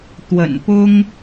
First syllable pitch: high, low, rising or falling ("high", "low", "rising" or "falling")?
low